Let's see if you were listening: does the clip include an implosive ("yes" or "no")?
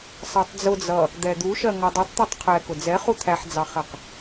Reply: no